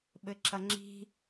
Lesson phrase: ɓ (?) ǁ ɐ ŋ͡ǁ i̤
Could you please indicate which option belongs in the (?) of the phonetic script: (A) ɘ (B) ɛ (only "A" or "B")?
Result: A